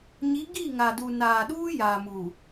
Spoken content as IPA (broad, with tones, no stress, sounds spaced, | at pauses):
ɲ i˨˦ ɡ i˦˨ ŋ a˨ d u˨ n aː˨ ɗ uː˦ j aː˨ m uː˨